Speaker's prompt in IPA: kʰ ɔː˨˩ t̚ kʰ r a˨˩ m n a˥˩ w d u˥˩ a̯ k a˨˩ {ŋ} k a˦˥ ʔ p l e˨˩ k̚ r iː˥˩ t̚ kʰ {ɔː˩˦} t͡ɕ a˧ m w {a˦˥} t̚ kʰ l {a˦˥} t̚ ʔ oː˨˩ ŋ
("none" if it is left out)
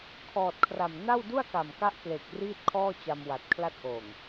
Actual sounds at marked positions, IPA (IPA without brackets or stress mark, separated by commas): m, ɔː˥˩, a˨˩, a˦˥